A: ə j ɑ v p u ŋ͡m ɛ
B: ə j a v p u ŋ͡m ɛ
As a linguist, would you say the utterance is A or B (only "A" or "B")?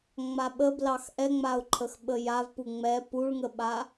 B